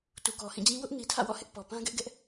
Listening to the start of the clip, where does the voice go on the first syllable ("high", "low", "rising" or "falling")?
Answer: low